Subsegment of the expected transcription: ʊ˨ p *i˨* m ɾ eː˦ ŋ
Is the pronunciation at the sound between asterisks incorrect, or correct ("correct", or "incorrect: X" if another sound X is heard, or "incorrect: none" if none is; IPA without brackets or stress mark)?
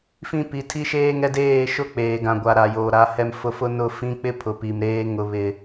correct